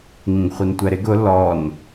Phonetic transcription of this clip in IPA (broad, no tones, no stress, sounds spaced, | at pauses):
ŋ ĩ ɡ χʷ i n tʷ ɛ ɾ ɪ ɡ ʊ l ɔ n